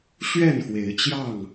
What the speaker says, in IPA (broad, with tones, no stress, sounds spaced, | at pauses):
ɕ ɥ ɛ˥˨ n x w e˨˦ ɪ̯ t͡ɕ j ɑ˥˨ ŋ